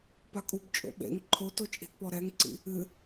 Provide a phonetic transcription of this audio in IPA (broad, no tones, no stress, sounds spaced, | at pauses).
p a kʼ u b t͡ʃʼ o̰ ɓ ḛ ŋ ǃʰ o t o t͡ʃʼ i̤ t p ɔ ɾ ɛ ŋ ǀ ḭ | ɨ